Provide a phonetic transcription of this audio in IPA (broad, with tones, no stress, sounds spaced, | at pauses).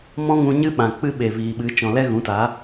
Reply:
m ɔ̃˦ ŋ ũ˧ ɲ ɨ˦ ɓ ã˨ k͡p ɨ˦ ɓ e˨ v iː˨ ɓ ɨ˨˦ t͡ʃ ɔ̃˨ l ɛ˦ ɣ ũ˨˦ t a˨˦